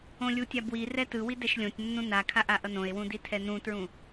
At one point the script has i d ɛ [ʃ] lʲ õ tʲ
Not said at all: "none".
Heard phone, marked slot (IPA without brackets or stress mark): ʃ